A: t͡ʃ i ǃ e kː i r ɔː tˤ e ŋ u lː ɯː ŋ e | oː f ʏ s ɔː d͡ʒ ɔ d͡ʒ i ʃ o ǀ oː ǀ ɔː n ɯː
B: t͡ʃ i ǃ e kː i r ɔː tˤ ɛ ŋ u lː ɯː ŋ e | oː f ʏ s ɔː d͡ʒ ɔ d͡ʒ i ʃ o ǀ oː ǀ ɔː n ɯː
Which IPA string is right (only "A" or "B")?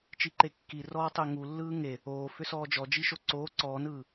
A